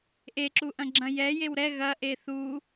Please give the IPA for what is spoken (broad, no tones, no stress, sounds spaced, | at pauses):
ʔ e ǁ u ʔ ɐ̃ ɡ͡ǁ ɐ̃ j ɛ j e w ɾ ɛ ɣ ɐ ʔ e θ u